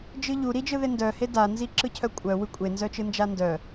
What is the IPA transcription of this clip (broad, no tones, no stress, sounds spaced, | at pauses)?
d͡ʒ ɯ ʎ u ɾ i d͡ʒ ɯ ð e n d œ h e d a n z i ǁ ɯ cʰ œ kʷʼ œ w ɯ kʷʼ e n z œ t͡ʃ ɯ n d͡ʒ a n d œ